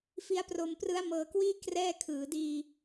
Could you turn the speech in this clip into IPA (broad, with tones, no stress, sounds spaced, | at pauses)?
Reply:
f i˦˥ a̯ p r o˧ m p r ɯ˦˥ a̯ m ɤː˧ k w iː˥˩ k r ɛː˥˩ kʰ ɯː˩˦ d iː˧